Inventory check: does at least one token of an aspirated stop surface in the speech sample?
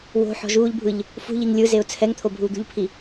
yes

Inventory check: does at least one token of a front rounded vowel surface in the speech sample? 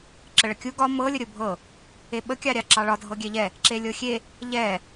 no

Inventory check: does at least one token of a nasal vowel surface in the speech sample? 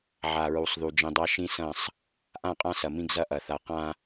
yes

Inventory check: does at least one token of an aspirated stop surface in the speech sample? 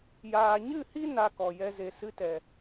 no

